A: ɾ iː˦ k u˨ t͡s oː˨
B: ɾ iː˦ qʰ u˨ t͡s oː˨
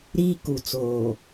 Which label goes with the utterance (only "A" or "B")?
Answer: A